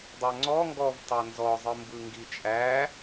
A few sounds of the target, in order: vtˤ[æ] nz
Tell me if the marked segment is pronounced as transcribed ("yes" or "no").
no